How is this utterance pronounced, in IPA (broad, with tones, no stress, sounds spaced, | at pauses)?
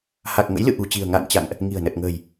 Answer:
h a˨˩ k̚ ŋ ə̰˧˥ j l ɨ̰˧˨ ʔ ṳ˨˩ t͡ɕ i̤˨˩ ə̯ ŋ a̰ː˧˨ n t͡ɕ a̰˧˨ ŋ ʔ | ŋ i̤˨˩ ə̯ n ə˨˩ t̚ ŋ ə̤ː˨˩ j